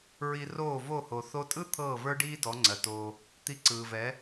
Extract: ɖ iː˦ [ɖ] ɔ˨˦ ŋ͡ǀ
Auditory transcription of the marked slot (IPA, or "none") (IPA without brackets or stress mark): d